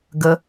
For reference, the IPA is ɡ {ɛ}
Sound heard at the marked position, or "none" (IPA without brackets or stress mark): ə